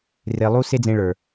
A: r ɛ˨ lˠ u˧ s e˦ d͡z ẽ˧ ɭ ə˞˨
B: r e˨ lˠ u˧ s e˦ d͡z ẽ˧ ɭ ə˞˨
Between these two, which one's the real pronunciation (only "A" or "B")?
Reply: B